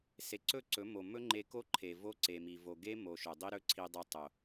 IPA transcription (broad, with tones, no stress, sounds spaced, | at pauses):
s e˨ ǀ ɵ˦˨ ǀ ɵ˨˦ m o˨ m ɵ˦ ŋ͡ǃ e˧ k o˦ ǃʰ e˨ v o˦ ǀ e˨ m i˨ v o˨ ɡ e˦ m o˨ ʃ ɵ˨ dˤ i˦ ɾ ɵ˦ ǀʰ i˧ dˤ e˧ tˤ o˨